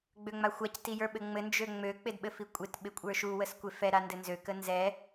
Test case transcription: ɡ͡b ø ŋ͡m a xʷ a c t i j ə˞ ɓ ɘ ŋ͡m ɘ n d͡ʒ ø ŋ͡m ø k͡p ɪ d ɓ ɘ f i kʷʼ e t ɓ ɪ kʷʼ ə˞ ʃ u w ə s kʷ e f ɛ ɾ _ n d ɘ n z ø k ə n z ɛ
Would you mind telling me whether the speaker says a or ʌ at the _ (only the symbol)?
a